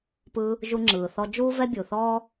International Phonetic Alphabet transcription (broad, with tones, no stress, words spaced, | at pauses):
pɯː˧ | ʒu˧ŋ͡ǁɯː˩θɔ˧ d͡ʒuː˥vɛ˥bʲu˩θɔː˥